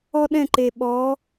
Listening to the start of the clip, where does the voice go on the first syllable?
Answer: high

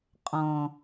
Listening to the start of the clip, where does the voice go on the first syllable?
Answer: low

